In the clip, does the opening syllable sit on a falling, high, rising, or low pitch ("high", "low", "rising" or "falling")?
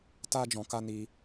high